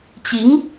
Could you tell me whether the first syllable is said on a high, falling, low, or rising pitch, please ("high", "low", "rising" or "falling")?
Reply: rising